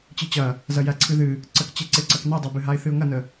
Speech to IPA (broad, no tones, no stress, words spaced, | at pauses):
t͡ɕɨt͡ɕɐ | zɐjæǀʰɨðɨ | ǀəkt͡ɕeǀeǀɐk nedˤæbɨɦaɪ̯ θɨʊ̯ŋɐnə